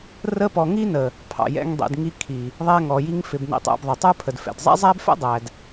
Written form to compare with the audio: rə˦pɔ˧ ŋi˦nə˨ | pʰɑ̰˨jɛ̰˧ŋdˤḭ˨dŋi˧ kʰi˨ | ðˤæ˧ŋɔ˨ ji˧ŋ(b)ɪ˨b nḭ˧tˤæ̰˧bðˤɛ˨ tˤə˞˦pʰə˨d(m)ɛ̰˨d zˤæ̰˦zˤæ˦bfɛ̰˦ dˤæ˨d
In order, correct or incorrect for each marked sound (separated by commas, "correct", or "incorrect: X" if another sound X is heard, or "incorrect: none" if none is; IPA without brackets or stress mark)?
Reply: incorrect: f, incorrect: f